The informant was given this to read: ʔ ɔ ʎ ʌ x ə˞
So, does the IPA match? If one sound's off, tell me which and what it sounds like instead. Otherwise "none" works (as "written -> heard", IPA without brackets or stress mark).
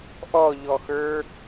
ʌ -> ɔ